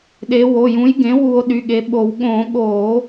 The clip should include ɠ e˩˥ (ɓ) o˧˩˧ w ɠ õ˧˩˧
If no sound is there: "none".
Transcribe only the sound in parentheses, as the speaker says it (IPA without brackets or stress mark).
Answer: ɓ